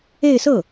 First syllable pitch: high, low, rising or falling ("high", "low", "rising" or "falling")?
falling